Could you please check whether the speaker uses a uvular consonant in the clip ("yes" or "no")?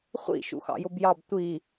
yes